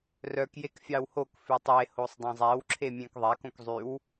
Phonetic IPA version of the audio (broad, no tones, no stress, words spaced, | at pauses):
rœk jekfʲɑwhok fʉtˤe hosˤdˤẽzˤæw ǁʰemʲẽkðˤæk õkzˤyw